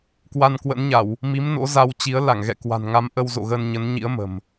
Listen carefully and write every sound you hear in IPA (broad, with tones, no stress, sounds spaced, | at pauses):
k w a˧ n k w ə̰˧˥ n ɲ a˧˩˨ w | m i˨˦ m n o̰˧˥ z a˧ w t͡ɕ i˨˦ ə̯ l a˧˩ ŋ ɣ ɛ̰˧˨ k w a̤˨˩ n ŋ a˨˦ m ʔ ə˧ w z o̰˧˨ ɣ ə˧ n ɲ ə˨˦ n ɲ ḭ˧˥ ə̯ m ə̤˨˩ m